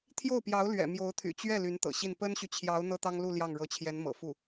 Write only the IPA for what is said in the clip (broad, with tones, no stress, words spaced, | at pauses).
t̪ʰjo˥˩ʊ̯pjɑ˧˥ʊ̯ lɥɛ̰˨˩mjo˧˥ʊ̯t̪ʰy̰˨˩ t͡ɕɥɛ˥˩ ly˧˥nt̪ɤ̰˨˩ɕi˥˩n pə˥nɕy˨t͡ɕʰjɑ˧˥ʊ̯ n̪ɤ˥t̪ɑ˥ŋlu˥˧ ljɑ˥˩ŋɻɤ˧˥t͡ɕʰjɛ˧˥n mɤ̰˨˩fu˥˩